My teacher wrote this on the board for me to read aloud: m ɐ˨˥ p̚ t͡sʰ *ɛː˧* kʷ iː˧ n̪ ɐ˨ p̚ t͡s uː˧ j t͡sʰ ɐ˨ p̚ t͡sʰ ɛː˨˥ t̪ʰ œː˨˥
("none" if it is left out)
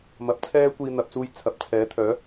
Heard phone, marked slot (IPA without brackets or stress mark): ɛː˥